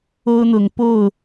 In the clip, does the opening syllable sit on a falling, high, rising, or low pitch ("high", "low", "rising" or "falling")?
high